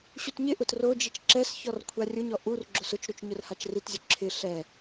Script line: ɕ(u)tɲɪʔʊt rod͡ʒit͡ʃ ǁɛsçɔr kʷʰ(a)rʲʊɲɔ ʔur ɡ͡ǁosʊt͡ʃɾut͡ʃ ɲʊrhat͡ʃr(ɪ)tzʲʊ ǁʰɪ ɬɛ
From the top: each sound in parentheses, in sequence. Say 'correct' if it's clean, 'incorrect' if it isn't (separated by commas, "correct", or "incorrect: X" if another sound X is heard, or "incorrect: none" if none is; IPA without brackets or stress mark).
correct, correct, incorrect: i